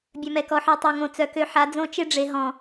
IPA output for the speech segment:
bʲ œ˨ m ɛ˨ k ɔ˨ ħ œ˦˨ tˤ ø˨ ŋ õ˨ t͡s œ˨ k ø˦ ħ a˨˦ d͡z õ˦ t͡ʃ e˦ ɖ͡ʐ e˨ ɦ ɔ̃˨

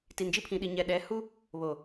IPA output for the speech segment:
t i˨ n d͡ʒ i˦ pʰ ĩ˨ ɗ i˨ ɲ ɛ˨ ɗ ɛ˨˦ h u˦ | β o˨

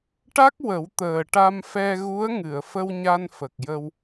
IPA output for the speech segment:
ʈ a˦˥ k̚ w ə˨˩˦ w t̪ əː˨˩ ʈ a˧ m f ɛ˧ ɣ u˧˥ ə̯ ŋ ɨ˨˩˨ ə̯ f ə˧ w ɲ a˧ n f ə˨˩ k̚ j ə˧ w

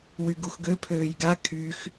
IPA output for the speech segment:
w y ɡ u x ɡ ø pʰ øː j ɡ a kʰ y x

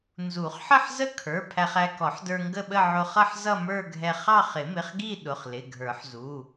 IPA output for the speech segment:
n z u˨˩˦ χ ħ ə˥˧ ħ z ə˥˧ kʰ ə˞˩˧˩ pʰ æ˧ χ æ˧ k ɔ˨˩˦ ħ d ə˞˧ ŋ ɡ ə˥˧ ɓ ə˥˧ ʕ ʊ˧ χ ʌ˥˧ ħ z ʌ˥˧ m ə˞˥˧ ɡʱ ɛ˧ χ ɑ˥˧ χ ɪ˨˩˦ m ɪ˩˧˩ χ ɡ i˥˧ ɗ ʊ˩˧˩ χ l ɪ˩˧˩ ɡʱ ə˞˨˩˦ ħ z u˩˧˩

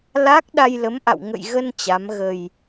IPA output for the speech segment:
l a˦˥ k̚ ɗ a˧ j l ə˨˦ m ʔ a̰˧˨ w ŋ ə̰˧˨ j ɣ ə˧ n t͡ɕ a˨˦ m ɣ ə˨˩ j

